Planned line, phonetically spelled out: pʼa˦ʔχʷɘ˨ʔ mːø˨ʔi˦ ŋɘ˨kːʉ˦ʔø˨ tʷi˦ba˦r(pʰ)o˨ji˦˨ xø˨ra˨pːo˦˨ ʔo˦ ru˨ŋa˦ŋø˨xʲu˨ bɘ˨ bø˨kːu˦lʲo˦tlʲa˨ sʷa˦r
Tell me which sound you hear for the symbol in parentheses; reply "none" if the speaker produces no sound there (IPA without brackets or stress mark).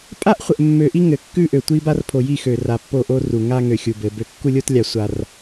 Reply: pʰ